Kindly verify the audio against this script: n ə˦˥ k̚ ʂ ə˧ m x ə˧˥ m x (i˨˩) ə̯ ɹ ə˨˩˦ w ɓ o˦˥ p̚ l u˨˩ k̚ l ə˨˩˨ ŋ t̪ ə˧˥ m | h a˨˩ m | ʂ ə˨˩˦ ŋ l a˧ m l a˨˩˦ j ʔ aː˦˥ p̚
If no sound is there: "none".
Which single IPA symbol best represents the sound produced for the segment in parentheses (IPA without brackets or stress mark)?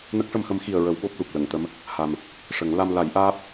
i˨˩